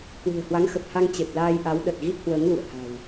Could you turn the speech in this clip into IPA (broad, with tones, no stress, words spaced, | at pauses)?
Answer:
kwɨ̤˨˩ə̯hwa˨˦ŋxə˨˩p̚ ha˧ŋ t͡ɕe˨˩p̚laː˧jʔa˨˦w ɗə˨˩t̚ɣi˦˥t̚hwəː˨˦ŋ lṵ˧˨ə̯ha̤˨˩w